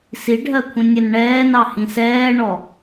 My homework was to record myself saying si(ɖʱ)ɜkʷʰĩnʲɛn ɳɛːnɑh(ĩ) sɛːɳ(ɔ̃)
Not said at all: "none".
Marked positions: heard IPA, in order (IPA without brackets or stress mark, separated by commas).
ɖʱ, ĩ, ɔ